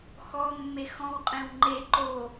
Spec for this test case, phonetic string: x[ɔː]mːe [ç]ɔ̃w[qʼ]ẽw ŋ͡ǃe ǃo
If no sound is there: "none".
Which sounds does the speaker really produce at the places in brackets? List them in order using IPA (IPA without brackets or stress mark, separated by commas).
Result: ɔ, x, qʼ